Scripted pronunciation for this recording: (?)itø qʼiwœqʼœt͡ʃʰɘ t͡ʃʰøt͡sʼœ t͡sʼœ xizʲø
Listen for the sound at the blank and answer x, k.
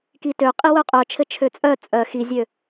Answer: k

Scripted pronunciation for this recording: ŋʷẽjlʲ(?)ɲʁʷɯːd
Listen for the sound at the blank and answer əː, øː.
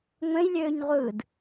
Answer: øː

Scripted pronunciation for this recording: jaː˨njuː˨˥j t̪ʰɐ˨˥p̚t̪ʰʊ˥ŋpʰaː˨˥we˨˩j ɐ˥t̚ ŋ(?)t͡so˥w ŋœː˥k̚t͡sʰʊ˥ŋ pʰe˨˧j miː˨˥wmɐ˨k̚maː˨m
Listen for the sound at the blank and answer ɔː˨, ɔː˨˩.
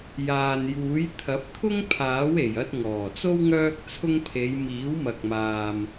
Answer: ɔː˨˩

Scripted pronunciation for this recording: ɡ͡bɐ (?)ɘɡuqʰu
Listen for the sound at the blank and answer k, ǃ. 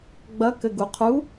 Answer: k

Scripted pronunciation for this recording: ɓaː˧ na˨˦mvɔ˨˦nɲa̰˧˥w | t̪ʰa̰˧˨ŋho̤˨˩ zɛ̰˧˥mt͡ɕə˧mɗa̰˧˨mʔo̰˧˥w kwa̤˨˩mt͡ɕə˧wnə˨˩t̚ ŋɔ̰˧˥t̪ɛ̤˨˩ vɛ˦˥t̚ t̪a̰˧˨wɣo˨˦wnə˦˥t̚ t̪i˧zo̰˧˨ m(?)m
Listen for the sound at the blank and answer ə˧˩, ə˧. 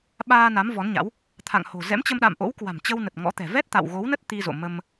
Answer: ə˧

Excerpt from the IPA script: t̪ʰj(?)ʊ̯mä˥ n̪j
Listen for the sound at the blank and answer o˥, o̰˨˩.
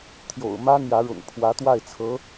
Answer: o̰˨˩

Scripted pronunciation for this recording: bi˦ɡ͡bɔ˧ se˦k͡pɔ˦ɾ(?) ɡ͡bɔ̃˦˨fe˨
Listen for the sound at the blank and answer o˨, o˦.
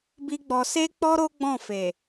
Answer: o˦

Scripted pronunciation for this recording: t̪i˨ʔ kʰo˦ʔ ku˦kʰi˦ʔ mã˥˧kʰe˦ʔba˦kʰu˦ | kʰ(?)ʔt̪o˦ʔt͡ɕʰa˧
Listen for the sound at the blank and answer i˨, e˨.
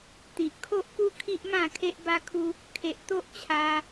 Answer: e˨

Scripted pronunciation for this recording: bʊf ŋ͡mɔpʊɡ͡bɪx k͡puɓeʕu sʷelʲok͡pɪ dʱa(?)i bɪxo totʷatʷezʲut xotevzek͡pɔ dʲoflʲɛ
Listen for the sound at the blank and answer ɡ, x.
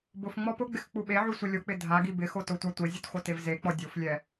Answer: ɡ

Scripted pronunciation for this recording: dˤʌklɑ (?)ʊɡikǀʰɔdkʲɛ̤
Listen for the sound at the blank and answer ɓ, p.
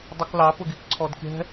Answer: p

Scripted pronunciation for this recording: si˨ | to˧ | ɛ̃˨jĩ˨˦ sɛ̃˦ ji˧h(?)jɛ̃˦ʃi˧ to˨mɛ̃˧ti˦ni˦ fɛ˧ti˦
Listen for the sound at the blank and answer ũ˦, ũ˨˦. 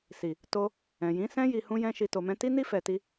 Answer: ũ˦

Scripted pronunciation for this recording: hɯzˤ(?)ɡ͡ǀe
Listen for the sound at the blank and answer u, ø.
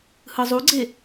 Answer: u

